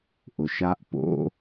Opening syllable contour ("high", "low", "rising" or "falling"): low